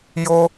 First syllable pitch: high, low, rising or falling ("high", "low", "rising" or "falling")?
high